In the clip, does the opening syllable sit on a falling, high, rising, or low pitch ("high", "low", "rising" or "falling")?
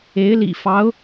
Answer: rising